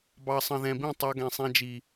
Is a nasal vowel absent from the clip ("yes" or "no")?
no